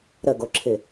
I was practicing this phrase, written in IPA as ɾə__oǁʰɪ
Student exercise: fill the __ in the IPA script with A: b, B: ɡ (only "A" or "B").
B